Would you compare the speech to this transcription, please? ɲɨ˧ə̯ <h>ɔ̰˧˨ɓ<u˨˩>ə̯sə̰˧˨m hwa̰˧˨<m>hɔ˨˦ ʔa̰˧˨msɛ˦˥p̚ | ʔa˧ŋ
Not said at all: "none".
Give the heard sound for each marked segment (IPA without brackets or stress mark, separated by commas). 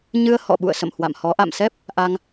h, ṵ˧˨, m